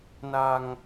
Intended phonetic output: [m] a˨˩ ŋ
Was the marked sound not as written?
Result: yes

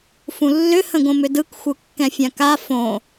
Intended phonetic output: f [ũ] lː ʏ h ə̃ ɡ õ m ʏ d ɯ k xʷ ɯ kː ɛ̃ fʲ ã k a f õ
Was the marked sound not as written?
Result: no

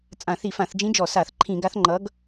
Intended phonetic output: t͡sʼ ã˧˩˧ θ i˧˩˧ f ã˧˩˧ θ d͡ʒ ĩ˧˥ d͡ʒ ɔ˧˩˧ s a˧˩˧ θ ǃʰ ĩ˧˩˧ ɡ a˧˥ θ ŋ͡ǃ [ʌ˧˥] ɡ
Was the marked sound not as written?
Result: no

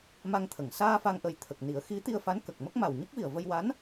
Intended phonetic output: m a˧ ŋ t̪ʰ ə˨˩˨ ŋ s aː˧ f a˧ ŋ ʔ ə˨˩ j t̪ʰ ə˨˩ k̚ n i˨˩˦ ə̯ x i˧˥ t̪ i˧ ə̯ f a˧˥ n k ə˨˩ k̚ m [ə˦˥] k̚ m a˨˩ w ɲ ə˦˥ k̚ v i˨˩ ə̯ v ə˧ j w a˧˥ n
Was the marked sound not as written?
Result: no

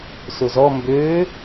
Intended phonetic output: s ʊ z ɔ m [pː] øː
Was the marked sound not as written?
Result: yes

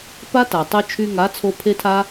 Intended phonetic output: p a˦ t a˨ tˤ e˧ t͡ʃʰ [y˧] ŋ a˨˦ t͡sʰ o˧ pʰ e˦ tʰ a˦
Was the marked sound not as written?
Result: no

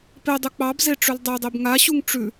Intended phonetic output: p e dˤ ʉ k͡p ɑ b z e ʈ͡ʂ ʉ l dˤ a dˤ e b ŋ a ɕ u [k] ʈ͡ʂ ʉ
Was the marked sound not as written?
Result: yes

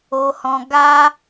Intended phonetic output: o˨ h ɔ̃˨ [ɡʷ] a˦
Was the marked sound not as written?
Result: yes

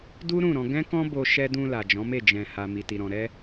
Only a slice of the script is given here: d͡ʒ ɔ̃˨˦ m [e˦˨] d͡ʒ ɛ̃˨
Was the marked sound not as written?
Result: no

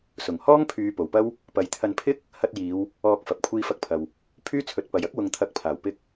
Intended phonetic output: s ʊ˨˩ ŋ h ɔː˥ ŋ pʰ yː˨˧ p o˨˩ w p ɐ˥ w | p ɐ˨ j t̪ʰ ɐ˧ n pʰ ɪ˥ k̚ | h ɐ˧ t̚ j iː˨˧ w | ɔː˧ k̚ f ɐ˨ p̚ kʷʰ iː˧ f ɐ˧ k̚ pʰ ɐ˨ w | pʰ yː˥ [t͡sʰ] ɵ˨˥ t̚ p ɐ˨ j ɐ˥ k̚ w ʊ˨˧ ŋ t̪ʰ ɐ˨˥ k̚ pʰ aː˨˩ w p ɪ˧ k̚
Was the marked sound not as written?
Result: no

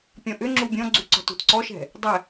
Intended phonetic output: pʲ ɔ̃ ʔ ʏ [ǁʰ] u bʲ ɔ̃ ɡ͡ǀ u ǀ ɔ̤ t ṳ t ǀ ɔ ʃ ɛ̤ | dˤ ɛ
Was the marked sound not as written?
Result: yes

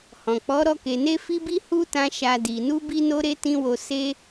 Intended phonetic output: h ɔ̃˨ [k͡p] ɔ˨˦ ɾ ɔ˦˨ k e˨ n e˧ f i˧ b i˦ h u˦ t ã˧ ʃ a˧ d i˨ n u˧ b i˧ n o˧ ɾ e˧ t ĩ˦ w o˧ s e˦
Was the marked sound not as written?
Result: no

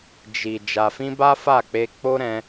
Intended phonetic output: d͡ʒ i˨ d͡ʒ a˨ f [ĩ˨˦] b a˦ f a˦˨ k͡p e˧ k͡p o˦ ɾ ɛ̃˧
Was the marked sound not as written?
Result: yes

